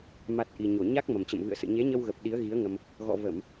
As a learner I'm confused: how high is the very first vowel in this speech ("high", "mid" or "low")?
low